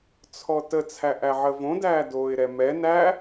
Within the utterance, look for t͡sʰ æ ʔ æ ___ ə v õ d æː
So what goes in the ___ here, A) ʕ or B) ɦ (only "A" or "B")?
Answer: A